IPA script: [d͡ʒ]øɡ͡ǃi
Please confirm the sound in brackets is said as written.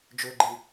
yes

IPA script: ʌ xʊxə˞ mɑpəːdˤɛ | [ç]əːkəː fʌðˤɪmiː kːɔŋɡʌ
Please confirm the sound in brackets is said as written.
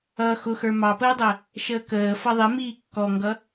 no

